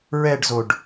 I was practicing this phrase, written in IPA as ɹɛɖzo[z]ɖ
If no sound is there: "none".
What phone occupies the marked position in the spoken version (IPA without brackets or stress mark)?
none